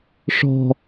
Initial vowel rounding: rounded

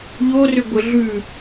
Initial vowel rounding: rounded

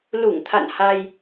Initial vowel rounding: rounded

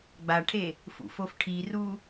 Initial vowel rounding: unrounded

